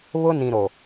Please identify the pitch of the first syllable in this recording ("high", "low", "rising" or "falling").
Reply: high